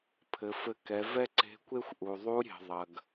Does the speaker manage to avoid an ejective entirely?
yes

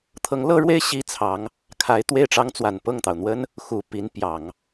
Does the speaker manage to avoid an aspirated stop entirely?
no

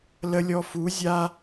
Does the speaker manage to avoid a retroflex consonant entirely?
yes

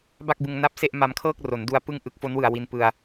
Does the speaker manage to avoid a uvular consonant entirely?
yes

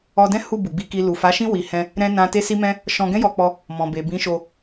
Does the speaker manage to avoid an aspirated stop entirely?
yes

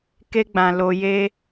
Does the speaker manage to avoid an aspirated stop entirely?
yes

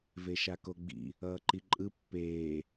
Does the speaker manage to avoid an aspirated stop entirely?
yes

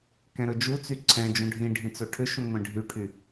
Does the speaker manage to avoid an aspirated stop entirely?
no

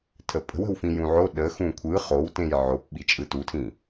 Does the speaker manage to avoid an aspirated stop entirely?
no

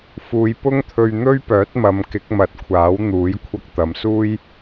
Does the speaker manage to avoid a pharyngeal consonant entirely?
yes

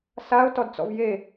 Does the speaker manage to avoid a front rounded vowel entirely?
yes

